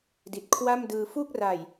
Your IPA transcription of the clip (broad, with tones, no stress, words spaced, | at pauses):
di˨˩t̚kʰwa˥˩mdɯː˧ fu˥˩k̚ra˨˩j